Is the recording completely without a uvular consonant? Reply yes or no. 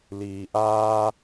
yes